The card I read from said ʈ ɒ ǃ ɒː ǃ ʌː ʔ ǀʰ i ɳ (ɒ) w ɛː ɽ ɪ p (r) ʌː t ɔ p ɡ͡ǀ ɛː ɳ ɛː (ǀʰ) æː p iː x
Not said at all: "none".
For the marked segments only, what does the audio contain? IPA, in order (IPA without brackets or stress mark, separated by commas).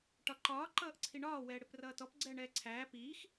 ɒː, r, ǀʰ